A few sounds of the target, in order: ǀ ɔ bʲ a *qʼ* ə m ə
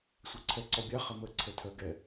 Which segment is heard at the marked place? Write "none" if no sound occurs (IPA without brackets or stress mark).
χ